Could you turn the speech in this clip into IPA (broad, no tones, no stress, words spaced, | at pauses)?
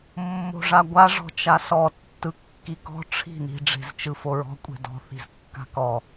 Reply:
mːo̤ʐaɡʷa ʐɔ̤t͡ʃasɔ tːɯkːikɔ̤ ʈ͡ʂʰi̤ ni̤ ɖ͡ʐe̤zt͡ʃɯfoɹɔ̤ kʷʼe̤dɔ̤ θi̤zkːa̤kɔ